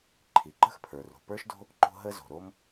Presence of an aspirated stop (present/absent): present